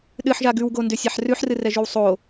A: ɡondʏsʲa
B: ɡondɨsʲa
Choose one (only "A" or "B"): A